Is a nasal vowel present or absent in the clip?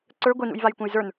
present